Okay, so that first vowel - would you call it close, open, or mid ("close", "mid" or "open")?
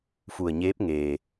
close